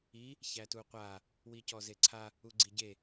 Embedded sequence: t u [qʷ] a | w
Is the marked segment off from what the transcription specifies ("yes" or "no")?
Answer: no